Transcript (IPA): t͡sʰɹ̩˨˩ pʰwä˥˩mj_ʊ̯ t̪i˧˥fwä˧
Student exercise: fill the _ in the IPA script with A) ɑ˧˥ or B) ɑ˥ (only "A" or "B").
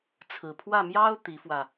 B